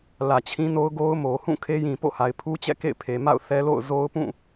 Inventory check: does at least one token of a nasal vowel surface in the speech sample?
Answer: yes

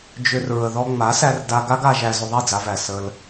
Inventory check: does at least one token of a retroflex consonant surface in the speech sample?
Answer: no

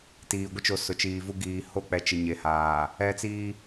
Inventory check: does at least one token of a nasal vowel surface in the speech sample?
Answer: no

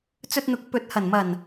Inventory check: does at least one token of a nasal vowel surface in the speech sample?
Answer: no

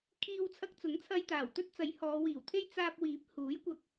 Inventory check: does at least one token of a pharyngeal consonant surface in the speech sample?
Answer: no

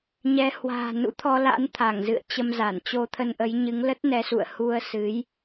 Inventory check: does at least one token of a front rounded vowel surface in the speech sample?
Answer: no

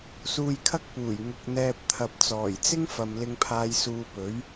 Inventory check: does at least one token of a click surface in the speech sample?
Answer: no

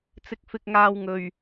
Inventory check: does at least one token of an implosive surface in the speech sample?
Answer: no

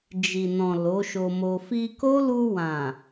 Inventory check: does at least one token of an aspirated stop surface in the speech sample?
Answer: no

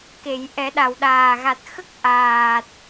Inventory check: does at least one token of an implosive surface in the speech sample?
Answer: yes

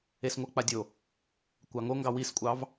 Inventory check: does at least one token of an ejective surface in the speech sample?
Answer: yes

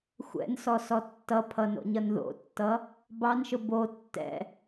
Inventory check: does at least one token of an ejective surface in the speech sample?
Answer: no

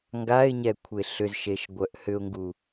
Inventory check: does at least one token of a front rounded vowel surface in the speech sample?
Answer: yes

